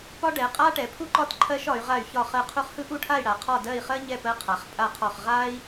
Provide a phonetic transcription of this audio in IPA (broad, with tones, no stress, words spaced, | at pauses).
pɒ˥ɖɛ˨˦qʼa˥ʈɛ˨˦ pʰu˥ǃɒ˥˧t ǃʰɜ˥ʃ ɒ˨˦y̯ʁa˥˧y̯ çɒ˥˧χɜ˥˧qʰu˥χ hɯ˥ʔu˥˧ʈʰa˥˧i̯ ɽa˨˦qʰɒ˥˧ dɜ˥˧i̯χɜ˥ɲɛ˥˧ pɜ˥qʰa˨˦χpʼa˥˧qʰɒ˥˧χ ʁa˥i̯